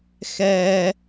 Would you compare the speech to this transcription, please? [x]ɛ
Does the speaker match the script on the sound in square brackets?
yes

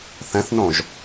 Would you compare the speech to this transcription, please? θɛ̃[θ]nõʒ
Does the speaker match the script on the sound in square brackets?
yes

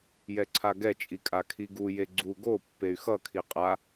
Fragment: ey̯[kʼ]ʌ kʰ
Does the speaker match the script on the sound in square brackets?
no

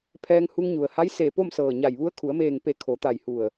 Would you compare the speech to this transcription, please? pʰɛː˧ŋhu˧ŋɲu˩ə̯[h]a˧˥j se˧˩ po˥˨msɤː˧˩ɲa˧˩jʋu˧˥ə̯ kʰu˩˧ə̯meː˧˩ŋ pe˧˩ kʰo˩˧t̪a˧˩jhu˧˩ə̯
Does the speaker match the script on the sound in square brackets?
yes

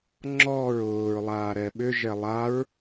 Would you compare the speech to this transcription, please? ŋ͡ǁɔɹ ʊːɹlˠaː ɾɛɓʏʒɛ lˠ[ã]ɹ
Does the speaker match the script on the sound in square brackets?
no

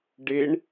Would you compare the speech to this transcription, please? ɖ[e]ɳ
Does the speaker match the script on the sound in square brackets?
yes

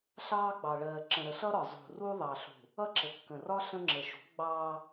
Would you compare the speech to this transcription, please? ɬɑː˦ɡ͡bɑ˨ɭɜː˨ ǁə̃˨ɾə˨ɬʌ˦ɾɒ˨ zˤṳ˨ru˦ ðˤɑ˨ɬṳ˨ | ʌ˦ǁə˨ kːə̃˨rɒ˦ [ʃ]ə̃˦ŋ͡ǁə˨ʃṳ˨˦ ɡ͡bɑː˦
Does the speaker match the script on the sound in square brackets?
no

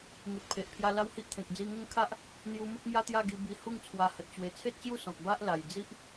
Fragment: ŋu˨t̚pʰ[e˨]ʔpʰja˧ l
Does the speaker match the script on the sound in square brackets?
yes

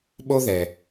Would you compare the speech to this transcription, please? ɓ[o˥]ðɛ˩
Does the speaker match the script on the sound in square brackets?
yes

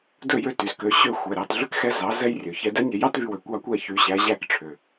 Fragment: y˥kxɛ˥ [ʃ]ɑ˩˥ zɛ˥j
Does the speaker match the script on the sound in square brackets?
no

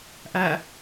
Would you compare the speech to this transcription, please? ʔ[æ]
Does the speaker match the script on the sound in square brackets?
yes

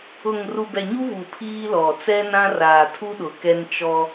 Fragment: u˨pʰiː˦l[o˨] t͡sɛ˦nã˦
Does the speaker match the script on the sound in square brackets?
no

